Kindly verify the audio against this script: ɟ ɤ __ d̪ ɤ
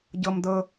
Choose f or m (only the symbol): m